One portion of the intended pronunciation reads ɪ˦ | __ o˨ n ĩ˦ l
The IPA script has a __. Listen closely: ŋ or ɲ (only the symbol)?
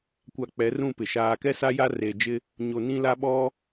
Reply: ɲ